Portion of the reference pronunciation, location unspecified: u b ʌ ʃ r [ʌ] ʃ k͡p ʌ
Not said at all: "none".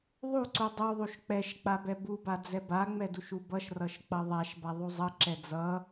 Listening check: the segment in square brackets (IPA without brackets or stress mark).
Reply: ʌ